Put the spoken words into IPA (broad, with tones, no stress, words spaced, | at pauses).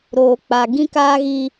ɾoː˨k͡pa˨ ɡĩ˦kaː˦ɣi˦